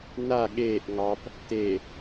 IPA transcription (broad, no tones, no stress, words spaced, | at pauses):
na ɠeːʔ ŋɑp | te